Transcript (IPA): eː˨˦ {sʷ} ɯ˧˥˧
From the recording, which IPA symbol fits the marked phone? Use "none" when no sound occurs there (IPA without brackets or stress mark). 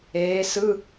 s